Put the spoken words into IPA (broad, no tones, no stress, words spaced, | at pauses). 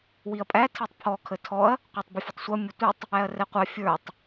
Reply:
wiɐ̯pʼæ tʰitˤpʰɔ kʰətʰɔɐ̯ | qʷɑtˤbɪfʲətˤsʷʌ mʲətʷitˤ | æɐ̯rɛqʷɑ fʲə˞tˤ